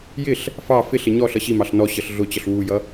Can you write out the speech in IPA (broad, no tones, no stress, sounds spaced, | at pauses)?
j ɪ ɬ | f ɑ f ɪ ɬ ɪ ɲ ɔ ɬ ʌ ɕ i m ɑ ɬ n ɔ ɕ ʌ ɬ ɮ ʊ t͡ɕ ʌ ɬ w u j ʌ